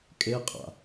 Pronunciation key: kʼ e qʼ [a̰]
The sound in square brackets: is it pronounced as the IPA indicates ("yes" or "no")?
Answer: yes